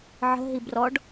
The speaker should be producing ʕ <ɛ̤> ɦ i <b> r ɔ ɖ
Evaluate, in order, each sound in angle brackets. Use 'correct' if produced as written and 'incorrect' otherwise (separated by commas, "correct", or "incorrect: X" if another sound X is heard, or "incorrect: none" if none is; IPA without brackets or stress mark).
incorrect: ə̤, correct